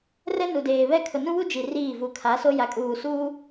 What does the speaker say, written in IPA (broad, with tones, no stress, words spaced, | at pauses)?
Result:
rɛ˦ nu˨deː˨βɛ˦ kʰʊ˨nũ˦wu˦ d͡ʒi˨riː˦˨ vu˨kʰa˨˦so˦ja˨ kʼuː˨suː˦